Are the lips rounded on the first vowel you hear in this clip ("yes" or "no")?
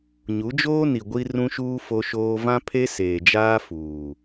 yes